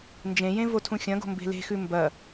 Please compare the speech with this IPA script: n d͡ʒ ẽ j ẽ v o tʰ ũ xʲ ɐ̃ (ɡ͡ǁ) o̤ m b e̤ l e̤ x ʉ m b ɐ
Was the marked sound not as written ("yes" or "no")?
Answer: yes